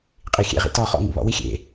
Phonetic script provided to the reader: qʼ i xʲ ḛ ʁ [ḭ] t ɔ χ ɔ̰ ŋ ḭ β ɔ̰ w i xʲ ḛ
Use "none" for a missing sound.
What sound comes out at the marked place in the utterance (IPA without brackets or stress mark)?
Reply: ḭ